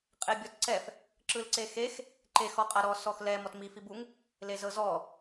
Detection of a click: present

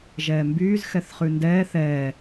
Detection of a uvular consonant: present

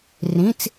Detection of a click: absent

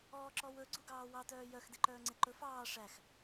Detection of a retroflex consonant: present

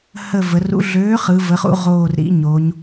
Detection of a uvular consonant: present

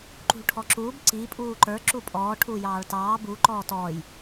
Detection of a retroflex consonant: present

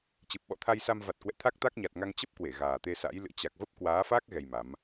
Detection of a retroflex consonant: absent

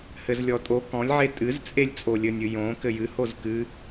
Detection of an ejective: present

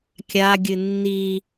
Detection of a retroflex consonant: absent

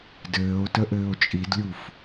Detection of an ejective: present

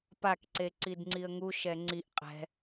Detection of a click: present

